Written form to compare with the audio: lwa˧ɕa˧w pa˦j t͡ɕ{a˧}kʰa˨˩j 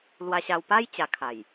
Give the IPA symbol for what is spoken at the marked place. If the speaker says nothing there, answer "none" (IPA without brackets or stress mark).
a˧